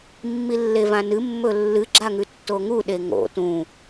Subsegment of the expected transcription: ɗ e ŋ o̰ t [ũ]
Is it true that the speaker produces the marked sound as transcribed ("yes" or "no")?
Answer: yes